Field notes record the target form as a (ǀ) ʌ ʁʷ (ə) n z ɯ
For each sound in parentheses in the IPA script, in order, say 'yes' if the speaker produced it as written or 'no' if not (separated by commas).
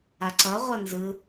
yes, no